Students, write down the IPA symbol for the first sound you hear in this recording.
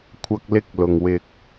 kʷʰ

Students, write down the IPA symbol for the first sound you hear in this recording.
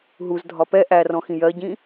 ɦ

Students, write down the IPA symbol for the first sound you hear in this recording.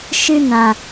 ʃ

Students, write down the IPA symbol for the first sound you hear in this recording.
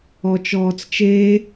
ɔ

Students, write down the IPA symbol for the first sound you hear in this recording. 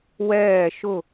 w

